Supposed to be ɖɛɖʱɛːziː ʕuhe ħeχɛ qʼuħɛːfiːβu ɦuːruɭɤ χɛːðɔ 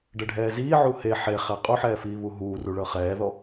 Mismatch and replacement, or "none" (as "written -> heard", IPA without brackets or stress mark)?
none